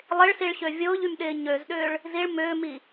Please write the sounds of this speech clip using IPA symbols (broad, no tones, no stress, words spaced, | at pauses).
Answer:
lˠɪɭsiɭɕø vʲʊːʎymɗɪː ɲøzɗʏːɭ | ziɭ mʏːmi